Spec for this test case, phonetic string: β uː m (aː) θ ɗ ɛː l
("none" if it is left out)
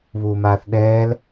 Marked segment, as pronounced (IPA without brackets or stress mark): aː